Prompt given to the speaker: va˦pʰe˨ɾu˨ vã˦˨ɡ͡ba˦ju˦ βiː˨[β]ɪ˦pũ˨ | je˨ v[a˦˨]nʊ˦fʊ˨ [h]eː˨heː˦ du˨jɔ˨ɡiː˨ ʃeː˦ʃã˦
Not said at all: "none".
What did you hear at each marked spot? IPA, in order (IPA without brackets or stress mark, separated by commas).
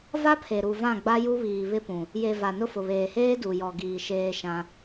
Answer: β, a˨, β